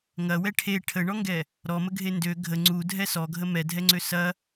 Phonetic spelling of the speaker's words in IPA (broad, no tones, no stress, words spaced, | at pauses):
ŋɐwɛ ʈʰe ʈʰəɳɔŋɡɛ | ɾɔməɡʱe ndø ɡʱə ŋ͡ǀudʱɛ sɔɡʱə mɛdʱɛŋ͡ǀø sɐ